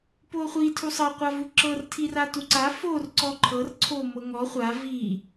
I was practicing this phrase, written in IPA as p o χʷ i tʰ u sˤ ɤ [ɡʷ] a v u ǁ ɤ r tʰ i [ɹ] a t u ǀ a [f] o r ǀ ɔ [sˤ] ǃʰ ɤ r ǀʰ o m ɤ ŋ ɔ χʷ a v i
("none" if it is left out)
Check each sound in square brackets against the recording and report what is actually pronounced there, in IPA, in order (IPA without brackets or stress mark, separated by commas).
qʷ, r, f, none